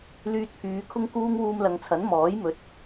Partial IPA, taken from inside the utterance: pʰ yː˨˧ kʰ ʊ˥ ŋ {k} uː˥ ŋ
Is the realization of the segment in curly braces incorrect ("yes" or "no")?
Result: no